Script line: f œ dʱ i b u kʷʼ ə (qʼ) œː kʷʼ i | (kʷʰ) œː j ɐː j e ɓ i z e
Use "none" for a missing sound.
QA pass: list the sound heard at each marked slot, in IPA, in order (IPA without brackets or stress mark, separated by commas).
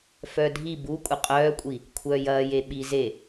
qʼ, kʷʰ